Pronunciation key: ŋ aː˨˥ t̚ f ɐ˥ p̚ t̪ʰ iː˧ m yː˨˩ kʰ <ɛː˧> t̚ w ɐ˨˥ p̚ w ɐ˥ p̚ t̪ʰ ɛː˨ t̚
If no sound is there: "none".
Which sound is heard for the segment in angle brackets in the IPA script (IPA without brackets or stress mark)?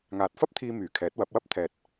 ɛː˨˥